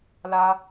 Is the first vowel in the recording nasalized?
no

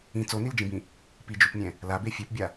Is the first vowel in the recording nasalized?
yes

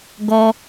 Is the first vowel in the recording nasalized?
no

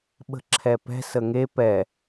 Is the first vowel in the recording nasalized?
no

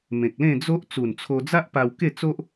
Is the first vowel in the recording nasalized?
yes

